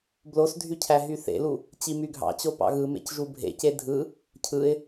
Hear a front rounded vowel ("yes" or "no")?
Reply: yes